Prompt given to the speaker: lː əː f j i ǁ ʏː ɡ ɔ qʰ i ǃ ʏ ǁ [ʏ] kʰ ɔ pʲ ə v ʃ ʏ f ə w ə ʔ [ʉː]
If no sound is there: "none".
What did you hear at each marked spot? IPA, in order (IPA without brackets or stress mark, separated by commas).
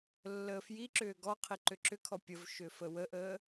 ʏ, əː